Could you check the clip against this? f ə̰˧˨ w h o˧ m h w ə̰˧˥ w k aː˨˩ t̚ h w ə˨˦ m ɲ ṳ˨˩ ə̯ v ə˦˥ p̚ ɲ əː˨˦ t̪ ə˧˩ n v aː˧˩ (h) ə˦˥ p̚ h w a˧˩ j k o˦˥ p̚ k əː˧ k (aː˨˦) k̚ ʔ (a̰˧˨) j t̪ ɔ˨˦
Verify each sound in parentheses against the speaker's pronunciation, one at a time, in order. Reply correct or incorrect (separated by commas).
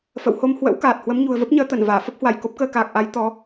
incorrect, incorrect, incorrect